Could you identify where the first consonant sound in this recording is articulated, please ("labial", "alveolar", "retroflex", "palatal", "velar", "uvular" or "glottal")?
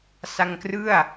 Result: alveolar